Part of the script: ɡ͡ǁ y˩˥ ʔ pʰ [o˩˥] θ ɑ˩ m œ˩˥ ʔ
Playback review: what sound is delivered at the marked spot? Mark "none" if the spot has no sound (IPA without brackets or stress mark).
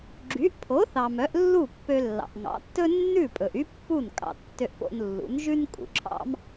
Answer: o˩˥